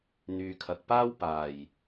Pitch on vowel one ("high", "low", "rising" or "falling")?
low